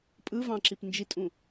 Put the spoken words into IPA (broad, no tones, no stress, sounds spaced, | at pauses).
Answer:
pʼ ɯ v ɑ̃ ǁ i p n d͡ʒ i tʼ ũ